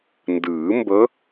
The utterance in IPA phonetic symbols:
ndɨː˨˩˦mbə˧˥

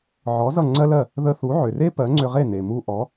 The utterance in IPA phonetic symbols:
ʕɔ˩˥ zʌ˥˩ŋ͡ǀɜ˥lɜ˥˩ | ðə˧θu˩˥ʕʏ˩re˥ pɜ˩˥ŋ͡ǀʏ˧ʁe˥˩ ne˩mu˧ ʔɔ˩˥

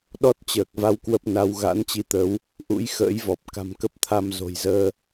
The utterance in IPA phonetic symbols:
ɗɔ˦˥t̚t͡ɕəː˨˩k̚va˨˦w kwə˦˥p̚na˧w ɣa̰˧˥nt͡ɕi˧t̪ə˨˦w | ʔṵ˧˥jxə̰ː˧˥jvɔ˨˩p̚ ka̤˨˩m kə˦˥p̚t̪ʰa˧m zo̤˨˩jzəː˧

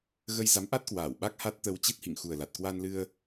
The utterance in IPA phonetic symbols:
ɣə˧j za˨˦mʔa˦˥t̚ kwaː˧˩w ɓa˦˥k̚ha˦˥t̚t̪ə˧w t͡ɕi˦˥t̚hḭ˧˨ŋ xu˨˩ə̯la˨˩t̚ kwa˧nlɨ˧ə̯

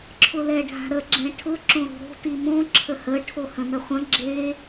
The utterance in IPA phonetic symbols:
ǁʰʊlɛɖʱa̤ɾə ɡ͡ǁɛ̃ʈʰʊ ǁõɾo̤ɾo̤ timõ ǁʰəhə ʈʰohə̃nəχʷə̃ ɡ͡ǁe

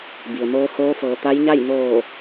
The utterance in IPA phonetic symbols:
bi˩ə̯moː˧˥ hoː˧˥fɤː˩˧ t̪a˧˥jɲa˥˨j noː˧˩

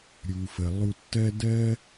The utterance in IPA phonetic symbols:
ɾʲu˩fə˩ lˠu˧tːɜ˥ dɜ˥

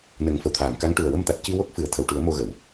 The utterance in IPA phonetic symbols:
nə˨˩˦ŋfə˨˩˨wt̪ʰaː˨˩˨mka˧˥ŋ ʈu˨˩ə̯wə˧mt̪a˨˩t̚ ci˧wo˦˥k̚ fɨ˨˩˦ə̯ t̪ʰə˨˩˨wʈu˨˩˦ə̯ mo˧ɣə˨˩˨w

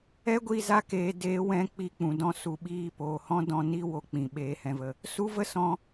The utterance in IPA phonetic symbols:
ɛ˦ɡʷi˦˨ za˦keː˨˦ deː˨˦wɛ̃˧ k͡pi˧k͡pũ˨ dɔ̃˧su˨ɓiː˧poː˨ hɔ̃˦dɔ̃˧ni˦ wo˧ k͡pĩ˨ ɓeː˨hɛ̃˨və˨ | su˦və˦sɔ̃˧

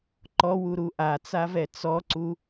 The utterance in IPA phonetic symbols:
ǃɔwuɾu ʔat͡savɛ t͡sɔǀu

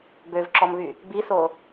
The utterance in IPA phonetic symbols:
bøvǁɔmβy | biso

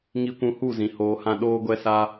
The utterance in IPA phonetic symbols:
ŋi˧kʷũ˧hu˦˨zĩ˨ hoː˧hã˦ ɗoː˦ɡʷɛ˦sa˦

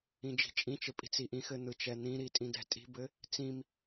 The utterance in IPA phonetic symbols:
ĩd͡ʒi̤t͡ʃʼĩt͡ʃɘ pʼi̤t͡siʔĩxɘ n̪ɯt͡ʃɛn̪ĩɾi tʼĩdɛ̤tʼi̤bɘ | t͡sĩm

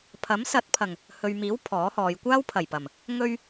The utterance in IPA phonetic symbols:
pʰɐ˨˥msɐ˨˥t̚pʰɐ˨˩ŋ | hɵ˨ɥmiː˨˥w pʰɔː˨˥hɔː˨˧j kʷaː˥wpʰɐ˨˩jpɐ˨˩m | ŋɵ˧ɥ

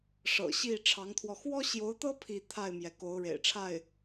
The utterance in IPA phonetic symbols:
ʂɤ̰˨˩ɕi˥˩ ʈ͡ʂʰɑ˧˥ŋt̪ʰwɔ˧ xwɔ˥ɕjo˧˥ʊ̯t̪ɤ˥ pʰi˥˧ t̪ʰa˥˩ɪ̯mjɛ˩ ko˧˥ʊ̯ɻḛ˨˩ɪ̯ʈ͡ʂʰa˥˩ɪ̯

